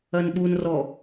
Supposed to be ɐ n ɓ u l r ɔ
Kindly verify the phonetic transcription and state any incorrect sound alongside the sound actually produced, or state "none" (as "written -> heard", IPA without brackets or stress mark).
l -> n